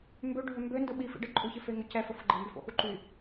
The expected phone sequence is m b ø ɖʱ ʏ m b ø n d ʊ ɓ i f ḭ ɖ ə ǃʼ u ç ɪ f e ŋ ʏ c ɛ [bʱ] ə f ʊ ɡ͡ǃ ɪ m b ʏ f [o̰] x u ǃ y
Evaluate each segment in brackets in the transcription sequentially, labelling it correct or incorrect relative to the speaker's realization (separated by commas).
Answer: incorrect, correct